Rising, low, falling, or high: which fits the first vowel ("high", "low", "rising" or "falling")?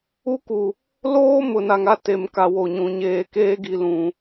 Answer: high